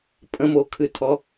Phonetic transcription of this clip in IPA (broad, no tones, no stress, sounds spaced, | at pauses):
pʼ ə̃ m o kʰ ɨ tʰ ɔ